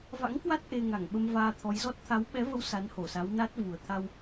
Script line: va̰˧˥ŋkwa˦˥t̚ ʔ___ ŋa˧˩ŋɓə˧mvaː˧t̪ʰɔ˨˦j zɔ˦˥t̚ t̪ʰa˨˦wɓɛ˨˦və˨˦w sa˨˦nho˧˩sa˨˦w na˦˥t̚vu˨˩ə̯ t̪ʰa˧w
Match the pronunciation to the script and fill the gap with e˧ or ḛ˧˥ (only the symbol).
e˧